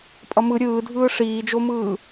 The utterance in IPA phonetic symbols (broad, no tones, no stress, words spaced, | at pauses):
pʼʌmɯ ɾʲɯːdʱɯː ʂiːd͡ʒomɯː